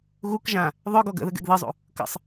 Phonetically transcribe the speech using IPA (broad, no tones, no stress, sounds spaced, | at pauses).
ɣ u k ʒ ã | ðˤ œ ɡ ɔ ɡ ə̰ ð ə ɡ ɛ̰ ɡ ð ɨ zˤ ṵ | k ə̰ sˤ